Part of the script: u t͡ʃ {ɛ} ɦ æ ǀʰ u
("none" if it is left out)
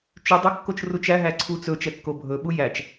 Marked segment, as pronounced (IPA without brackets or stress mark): æ